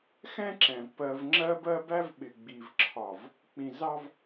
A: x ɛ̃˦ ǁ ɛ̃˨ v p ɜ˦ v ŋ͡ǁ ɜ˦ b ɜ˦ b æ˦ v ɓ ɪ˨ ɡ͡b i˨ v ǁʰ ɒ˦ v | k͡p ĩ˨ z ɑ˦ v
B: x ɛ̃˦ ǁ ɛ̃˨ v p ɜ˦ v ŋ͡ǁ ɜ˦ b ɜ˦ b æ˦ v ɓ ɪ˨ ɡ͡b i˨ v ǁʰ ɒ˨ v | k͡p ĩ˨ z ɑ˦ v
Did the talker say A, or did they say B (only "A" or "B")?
B